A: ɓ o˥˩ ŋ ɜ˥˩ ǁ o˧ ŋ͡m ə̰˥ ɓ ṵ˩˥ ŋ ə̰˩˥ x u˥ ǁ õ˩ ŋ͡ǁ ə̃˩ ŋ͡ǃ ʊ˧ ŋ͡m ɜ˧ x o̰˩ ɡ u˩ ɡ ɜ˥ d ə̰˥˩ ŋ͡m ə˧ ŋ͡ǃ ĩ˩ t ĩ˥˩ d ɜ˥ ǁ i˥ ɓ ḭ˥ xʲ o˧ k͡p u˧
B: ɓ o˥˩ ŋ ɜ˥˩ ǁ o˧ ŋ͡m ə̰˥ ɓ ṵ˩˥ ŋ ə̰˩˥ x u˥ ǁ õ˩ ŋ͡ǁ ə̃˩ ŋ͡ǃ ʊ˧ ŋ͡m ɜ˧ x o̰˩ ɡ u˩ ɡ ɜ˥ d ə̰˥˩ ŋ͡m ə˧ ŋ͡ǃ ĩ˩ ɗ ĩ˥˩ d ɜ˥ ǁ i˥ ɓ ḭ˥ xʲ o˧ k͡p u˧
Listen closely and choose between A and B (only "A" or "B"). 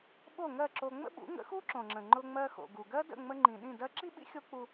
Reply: B